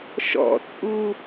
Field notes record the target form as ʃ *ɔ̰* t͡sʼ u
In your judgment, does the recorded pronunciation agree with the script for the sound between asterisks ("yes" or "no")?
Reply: yes